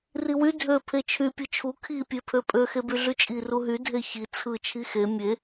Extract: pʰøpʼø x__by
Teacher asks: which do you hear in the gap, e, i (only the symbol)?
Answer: e